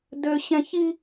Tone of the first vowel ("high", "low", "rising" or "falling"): high